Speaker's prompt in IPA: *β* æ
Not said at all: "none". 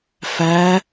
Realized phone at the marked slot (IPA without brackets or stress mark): f